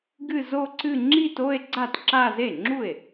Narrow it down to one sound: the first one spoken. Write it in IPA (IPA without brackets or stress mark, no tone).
ɡ